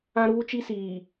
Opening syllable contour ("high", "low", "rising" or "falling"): high